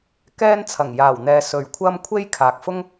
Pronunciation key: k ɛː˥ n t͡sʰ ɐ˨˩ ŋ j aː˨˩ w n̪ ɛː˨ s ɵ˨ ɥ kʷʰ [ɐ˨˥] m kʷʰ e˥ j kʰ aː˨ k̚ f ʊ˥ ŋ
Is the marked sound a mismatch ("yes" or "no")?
yes